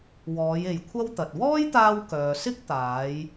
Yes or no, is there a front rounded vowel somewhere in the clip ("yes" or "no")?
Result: yes